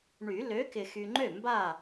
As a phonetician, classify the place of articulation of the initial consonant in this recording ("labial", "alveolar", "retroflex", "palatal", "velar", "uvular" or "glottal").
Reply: retroflex